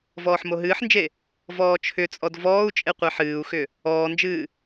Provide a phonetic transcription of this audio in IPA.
v ɔː ħ m o ɦ ɨː ħ n d͡ʒ e | v ɔː t͡ʃʰ ʏ t͡sʼ ɔ d v ɔː u̯ t͡ʃʼ e qʷ e ħ ɨː u̯ x ʏ | ɔː n d͡ʒ ɨː

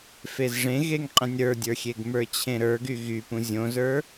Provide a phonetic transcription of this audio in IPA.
f e z ʐ ẽ ɣ e ŋ qʼ ẽ nʲ ɾ ə˞ dʲ ə˞ xʲ e ɡ m ə˞ t͡ɕʰ ẽ ɾ ə˞ ɡ y ɣ y p ũ zʲ õ z ə˞

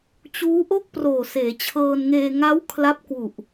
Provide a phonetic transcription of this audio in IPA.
t͡ɕ uː˦˥ ʔ o˥˩ k̚ p r oː˨˩ s eː˩˦ t͡ɕʰ ɤː˧ n ŋ eː˧ ŋ a˦˥ w kʰ l a˦˥ p̚ k w u˨˩ ʔ

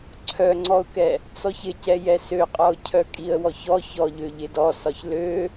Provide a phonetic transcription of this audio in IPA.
ǀʰ œ ŋ͡ǀ ɔ ʊ̯ k ɛ | t͡s ɔ ç ɪ c ɛ j ɛ s ø qʼ ɒ ʊ̯ cʰ œ kʼ i ə̯ w ɔ ç ɔ ç ɔ ʎ ø ʎ ɪ d ɔ s ɒ ç l ø

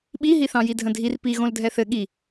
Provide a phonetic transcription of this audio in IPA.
ɓ i ɦ i θ ɑ̃ j i dʱ ə̃ dʱ i r p i ɣ õ l dʱ ɛ θ ɘ ɠ i

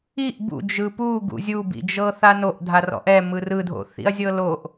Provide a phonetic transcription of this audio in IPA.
i ʔ b ṵ d͡ʒ ɯ p u ɡ ṵ zʲ u b ḭ d͡ʒ ɤ θ a n o ʔ dʱ a r ɔ̰ ʔ ɛ m ɯ r ɯ dʱ o̰ θ ḭ ɐ̯ zʲ ɤ l o ʔ

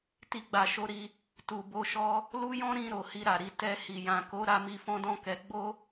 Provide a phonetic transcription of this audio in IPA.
t i˧ ɡ͡b a˨ ʃ o˨˦ ɾ i˧ | t u˨ b o˧ ʃ ɔ˦ | l u˦ j ɔ̃˦ ɾ ĩ˧ ɾ o˨ h i˧ ɾ a˨ ɾ i˧ t ɛ˧ h i˨ j ã˨ k o˨˦ ɾ a˧ m i˧ f ɔ̃˦ d ɔ̃˦ k ɛ˧ ɡ͡b o˦

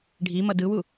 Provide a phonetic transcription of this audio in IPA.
ɖʱ i m ʌ d ɯ w u

